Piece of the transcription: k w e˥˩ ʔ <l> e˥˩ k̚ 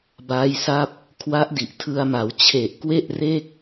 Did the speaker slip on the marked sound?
yes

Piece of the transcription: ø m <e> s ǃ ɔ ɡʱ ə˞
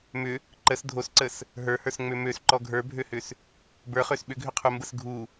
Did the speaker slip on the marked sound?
yes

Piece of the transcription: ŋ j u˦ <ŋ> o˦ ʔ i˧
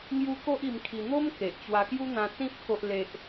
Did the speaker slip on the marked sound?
yes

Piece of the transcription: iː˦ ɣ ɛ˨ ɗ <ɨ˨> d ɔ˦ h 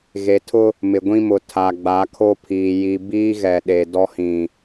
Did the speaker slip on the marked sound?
yes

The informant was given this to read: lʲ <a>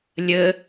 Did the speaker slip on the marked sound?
yes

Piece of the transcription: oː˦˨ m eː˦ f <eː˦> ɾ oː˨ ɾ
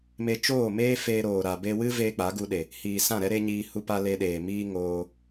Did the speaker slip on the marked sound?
yes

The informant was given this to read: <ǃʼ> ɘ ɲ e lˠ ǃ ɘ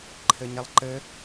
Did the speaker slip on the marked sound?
yes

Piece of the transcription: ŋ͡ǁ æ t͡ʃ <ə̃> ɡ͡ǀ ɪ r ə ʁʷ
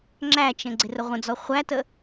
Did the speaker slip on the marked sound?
no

